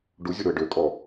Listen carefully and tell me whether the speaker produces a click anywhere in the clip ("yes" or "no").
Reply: no